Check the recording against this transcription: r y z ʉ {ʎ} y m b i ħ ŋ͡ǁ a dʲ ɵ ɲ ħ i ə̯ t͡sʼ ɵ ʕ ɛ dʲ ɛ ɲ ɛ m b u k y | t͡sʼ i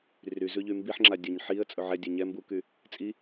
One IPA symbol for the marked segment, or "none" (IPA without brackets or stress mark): ʎ